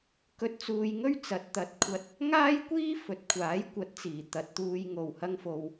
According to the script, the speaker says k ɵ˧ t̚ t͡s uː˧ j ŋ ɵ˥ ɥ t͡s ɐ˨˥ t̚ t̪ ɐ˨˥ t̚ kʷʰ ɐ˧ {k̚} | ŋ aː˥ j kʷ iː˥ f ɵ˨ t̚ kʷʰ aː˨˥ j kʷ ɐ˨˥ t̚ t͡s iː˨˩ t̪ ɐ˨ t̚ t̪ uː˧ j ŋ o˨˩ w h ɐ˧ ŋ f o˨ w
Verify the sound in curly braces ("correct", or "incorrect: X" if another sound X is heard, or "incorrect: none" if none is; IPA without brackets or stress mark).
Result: incorrect: t̚